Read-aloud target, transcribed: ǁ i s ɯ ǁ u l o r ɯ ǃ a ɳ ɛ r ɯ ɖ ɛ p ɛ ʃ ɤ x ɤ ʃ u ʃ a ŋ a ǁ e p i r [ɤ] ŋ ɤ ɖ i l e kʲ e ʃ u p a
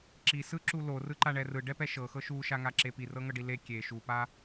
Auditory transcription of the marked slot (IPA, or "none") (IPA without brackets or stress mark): ɤ